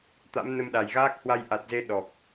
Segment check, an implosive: present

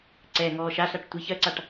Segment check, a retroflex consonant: present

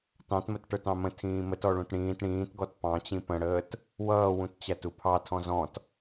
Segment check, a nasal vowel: present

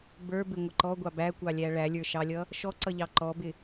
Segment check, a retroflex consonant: present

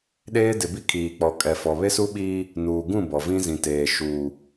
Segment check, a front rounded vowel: absent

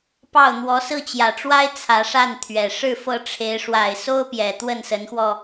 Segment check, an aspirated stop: present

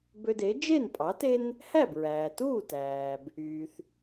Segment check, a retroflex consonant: absent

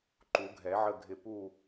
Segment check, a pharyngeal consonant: present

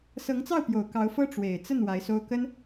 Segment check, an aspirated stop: absent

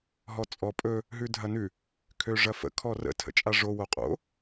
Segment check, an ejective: present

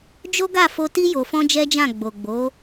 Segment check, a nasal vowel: present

